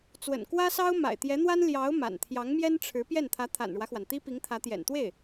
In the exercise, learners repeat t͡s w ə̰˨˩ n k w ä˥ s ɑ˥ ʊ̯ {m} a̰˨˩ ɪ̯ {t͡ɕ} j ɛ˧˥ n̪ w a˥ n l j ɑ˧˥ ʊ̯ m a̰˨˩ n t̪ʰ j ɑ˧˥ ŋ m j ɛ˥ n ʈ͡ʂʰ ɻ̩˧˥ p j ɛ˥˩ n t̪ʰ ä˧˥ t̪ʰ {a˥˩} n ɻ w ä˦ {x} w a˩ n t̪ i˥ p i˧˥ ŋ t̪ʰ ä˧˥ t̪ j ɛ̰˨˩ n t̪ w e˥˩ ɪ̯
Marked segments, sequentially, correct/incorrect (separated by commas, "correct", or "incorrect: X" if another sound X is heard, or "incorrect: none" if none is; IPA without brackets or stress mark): correct, incorrect: t̪, incorrect: a̰˨˩, correct